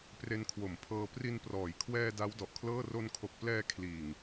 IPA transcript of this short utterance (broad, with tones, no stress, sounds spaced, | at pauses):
p r e˧ n kʰ w o˨˩ m pʰ ɤː˧ p r i˧ n p r ɔː˩˦ j kʰ w ɛː˧ d a˦˥ w d ɔ˨˩ ʔ kʰ l ɤː˥˩ r o˧ n kʰ o˨˩ k̚ p l ɛː˧ kʰ l iː˨˩ ŋ